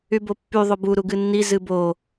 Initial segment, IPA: y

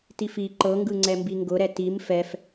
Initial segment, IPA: t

